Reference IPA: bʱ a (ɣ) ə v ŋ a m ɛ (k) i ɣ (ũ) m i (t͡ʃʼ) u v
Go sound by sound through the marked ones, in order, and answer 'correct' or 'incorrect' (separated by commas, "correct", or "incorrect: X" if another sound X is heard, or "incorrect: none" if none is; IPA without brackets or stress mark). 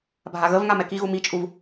correct, correct, incorrect: u, correct